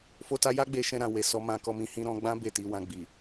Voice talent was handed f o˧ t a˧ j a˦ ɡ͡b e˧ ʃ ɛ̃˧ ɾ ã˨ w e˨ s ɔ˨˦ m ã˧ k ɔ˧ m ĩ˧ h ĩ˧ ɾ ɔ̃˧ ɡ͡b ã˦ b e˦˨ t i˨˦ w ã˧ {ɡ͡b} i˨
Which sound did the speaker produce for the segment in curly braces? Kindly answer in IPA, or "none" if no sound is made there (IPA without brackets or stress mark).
ɡ͡b